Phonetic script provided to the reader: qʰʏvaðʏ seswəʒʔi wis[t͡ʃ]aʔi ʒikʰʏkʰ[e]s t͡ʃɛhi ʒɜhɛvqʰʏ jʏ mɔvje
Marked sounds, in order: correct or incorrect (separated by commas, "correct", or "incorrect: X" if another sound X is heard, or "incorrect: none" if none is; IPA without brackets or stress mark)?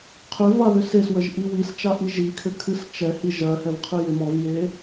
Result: correct, incorrect: ɨ